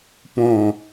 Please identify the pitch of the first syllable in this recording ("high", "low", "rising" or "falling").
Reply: falling